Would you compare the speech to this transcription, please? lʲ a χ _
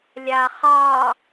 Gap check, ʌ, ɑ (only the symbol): ɑ